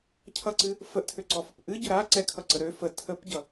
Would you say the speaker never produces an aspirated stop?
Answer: no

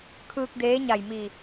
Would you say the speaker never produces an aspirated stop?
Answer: no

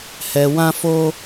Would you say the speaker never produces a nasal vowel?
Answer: no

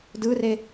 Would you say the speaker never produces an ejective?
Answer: yes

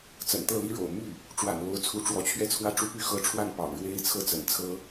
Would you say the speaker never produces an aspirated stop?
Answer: no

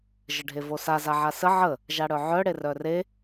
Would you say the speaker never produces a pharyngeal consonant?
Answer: no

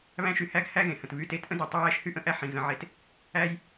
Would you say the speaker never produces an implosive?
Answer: yes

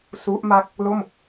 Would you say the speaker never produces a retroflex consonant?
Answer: yes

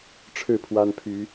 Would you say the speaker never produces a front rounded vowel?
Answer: no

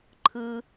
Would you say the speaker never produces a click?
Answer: no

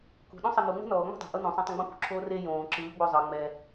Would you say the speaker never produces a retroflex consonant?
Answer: yes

